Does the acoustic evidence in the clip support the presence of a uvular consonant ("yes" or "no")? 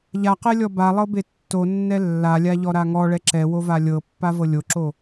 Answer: yes